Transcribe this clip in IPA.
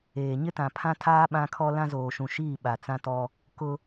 eː˨ ɲɪ˦tã˨pʰã˦tʰaː˦ ɓã˦kʰɔ˦ lã˦zoː˨ʃũ˨ʃiː˦˨ ɓa˨t͡sã˦tɔ˦ | kʊ˦

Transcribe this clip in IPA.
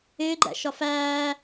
ɪːɡ͡ǃæ̰ ʃɒfæː

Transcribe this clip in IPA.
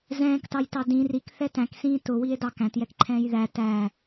zɛ̃ːktɑjtɑ dĩ rikθɛ tæ̃ksĩː tʊwie̯dɑ kæ̃tjɛkǃʰɛ̃ːj ðæ tæ

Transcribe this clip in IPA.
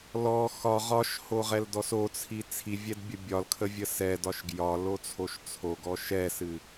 lɔ xɒ ʁɒʃhoʁɛldɔs ot͡sʰi t͡sʰivʲɛdbʲə bʲɒlkʰəvʲə sɛdɒʃ ɡjɒlot͡sʰoʃ t͡sʰoɡɔ ʃɛsɨ

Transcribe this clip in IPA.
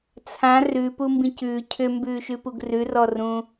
t͡sʰã rʉpumbĩc ʉː cʰʏmbʉːʃʉpuɡ rʉrɔrũ

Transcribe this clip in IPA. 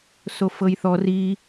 sofɤjθɔr i

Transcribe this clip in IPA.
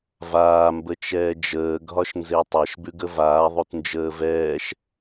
vaːmbə t͡ʃɛːd͡ʒəːɡʱɒʃnze tˤɛʃbʉɡə vaːðˤut nd͡ʒəːvɛːʃ

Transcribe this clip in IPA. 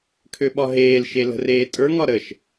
kʰøɓɒɦeːlʃe lə̤reːtʼə˞ŋɒ ɾəʃ

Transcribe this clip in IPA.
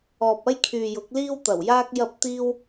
ɔː˨p̚ɐ˥jkʰyː˨ jʊ˨˥k̚liː˥wt̪ɐ˨˩wjaː˥k̚ jɐ˥p̚ t̪iː˥w

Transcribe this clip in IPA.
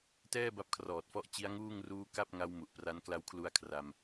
tɛː˥˩ba˦˥p̚ kʰrɔː˨˩t̚fɔ˦˥ʔ t͡ɕi˦˥a̯ŋuː˥˩ŋ ruː˦˥ ka˥˩p̚ ŋa˦˥w mu˨˩ʔpra˦˥n kla˧wkʰlu˧a̯ kʰra˧m

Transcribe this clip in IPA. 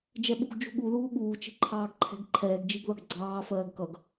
d͡ʒɛɓṳɡ d͡ʒṳɠu ðuːɠuː t͡ʃi̤ǃʰɑːɡǃʰɛ̤ɡǃʰɛːɡ d͡ʒiɡðʌɡɡ͡ǀɑː fɜːɡkʌɡ

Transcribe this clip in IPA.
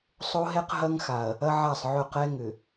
sˤo˦ɦɛ˦q ɦɐ˦ŋ xa˨ɐ̯ | ɐ˦ʕa˦˨sˤʕɵ˦˨ qɛ˦ ŋʏ˨

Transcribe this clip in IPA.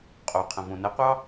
qʼoqʰə̃ võnəqʷɑ

